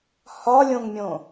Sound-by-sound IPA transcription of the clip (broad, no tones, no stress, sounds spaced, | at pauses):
h ɒ lʲ õ ŋ mʲ õ